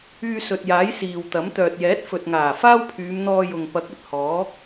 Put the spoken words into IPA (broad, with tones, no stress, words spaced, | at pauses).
yː˧sɵ˨t̚jaː˨˥j siː˨wt̪ɐ˨˥m t̪œː˨t̚jɛː˨˥t̚ fɵ˨t̚ŋaː˨˩ faː˥wpʰyː˨˧mn̪ɔː˧ jʊ˨ŋpɐ˨˥k̚ ɵ˨t̚hɔː˨˥